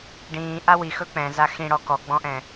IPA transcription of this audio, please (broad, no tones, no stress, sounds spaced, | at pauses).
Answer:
ɖ ĩː ʔ a w i x ɵ k͡p ɛ̃ z a x ĩ ɽ ɔ k ɔ ɡ͡b ɔ̃ ʔ ɛ̃